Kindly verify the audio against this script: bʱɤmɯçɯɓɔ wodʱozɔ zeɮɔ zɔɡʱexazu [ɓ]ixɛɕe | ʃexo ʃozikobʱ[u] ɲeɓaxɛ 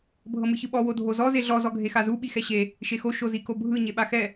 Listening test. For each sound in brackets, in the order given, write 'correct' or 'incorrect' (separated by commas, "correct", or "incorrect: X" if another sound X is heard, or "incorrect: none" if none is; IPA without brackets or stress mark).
correct, incorrect: ɯ